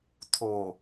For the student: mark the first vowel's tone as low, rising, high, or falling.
low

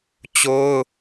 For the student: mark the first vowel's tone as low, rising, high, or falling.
high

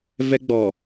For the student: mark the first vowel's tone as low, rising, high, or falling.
high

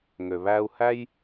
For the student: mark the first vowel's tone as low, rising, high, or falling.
low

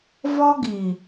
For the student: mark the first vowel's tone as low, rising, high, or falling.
high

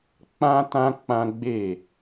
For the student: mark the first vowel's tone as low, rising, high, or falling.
high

